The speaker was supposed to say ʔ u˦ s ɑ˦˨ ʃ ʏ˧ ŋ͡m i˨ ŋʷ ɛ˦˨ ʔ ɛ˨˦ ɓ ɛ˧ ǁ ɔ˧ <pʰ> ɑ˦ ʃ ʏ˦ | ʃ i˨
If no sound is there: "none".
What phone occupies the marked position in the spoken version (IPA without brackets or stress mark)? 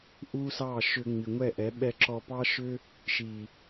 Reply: p